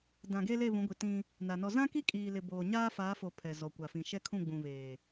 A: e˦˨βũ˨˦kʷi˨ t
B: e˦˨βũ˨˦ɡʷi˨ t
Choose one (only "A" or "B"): B